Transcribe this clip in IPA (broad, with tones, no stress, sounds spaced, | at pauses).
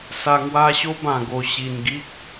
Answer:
s a˧ ŋ w a˦ ɕ o˦ b ã˨˩ ɡ o˨˩ ɕ i˨˩ n ɡ i˦ k̚